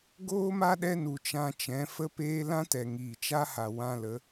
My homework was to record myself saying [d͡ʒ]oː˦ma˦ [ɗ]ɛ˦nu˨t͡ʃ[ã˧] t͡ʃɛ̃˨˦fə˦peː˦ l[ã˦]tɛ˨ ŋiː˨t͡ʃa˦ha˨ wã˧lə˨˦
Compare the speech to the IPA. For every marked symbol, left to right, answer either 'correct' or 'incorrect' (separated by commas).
incorrect, correct, correct, correct